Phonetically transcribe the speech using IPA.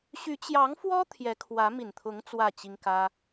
ɕ y˧˥ t͡ɕ j ɑ˧˥ ŋ f w ɔ˥ t̪ʰ j ɛ˧˥ kʰ w ä˧˥ m i˨˩ n t̪ʰ ʊ˧˥ ŋ t͡s w ä˥˩ t͡ɕ i˥ ŋ k ä˥

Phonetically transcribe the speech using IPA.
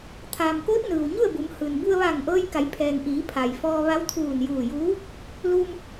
t̪ʰ aː˩ m k oː˧˥ t̚ n ɯː˩ w ɲ u˥˨ ə̯ b u˩˧ m h ɯː˩ n b u˧ ə̯ ʋ aː˧˩ ŋ ʔ ɤː˧ j k a˩˧ j pʰ ɛː˩ ŋ ʔ iː˩˧ pʰ a˩ j f ɔː˧ ʋ a˧˥ w t̪ʰ uː˧˩ n j uː˧˩ j uː˧˥ | l uː˧ m

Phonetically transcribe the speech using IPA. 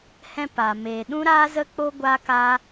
h ɛ̃˧ p a˨ m eː˨ ɗ ũ˦ ɾ aː˦ z ə˦ k͡p o˦ ɡʷ aː˦ k aː˦

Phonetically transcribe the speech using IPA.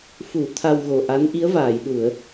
f u˨˩˦ t̪ʰ a˧ w ɣ o˨˩ ʔ a˧˥ n ʔ i˧˥ ə̯ v aː˨˩˨ j ɗ u˨˩˨ ə̯

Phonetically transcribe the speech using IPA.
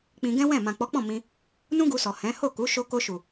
k͡p ĩ˧ ɡ ɛ̃˦ w ɛ̃˦˨ m ã˨ k͡p ɔ˨˦ k͡p ɔ̃˦˨ m ĩ˧ | n ũ˦ ɡ u˧ s ɔ˨ h ɛ̃˨˦ h o˦˨ k u˨˦ ʃ o˦ k o˧ ʃ u˨

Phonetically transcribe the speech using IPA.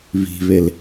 β i̤ β e l

